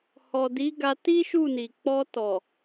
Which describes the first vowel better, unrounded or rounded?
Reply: rounded